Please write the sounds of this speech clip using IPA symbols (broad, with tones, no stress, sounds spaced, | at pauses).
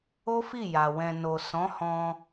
o˦ f i˦˨ j a˨ w ɛ̃˨ n o˨ s ɔ̃˨˦ h ɔ̃˧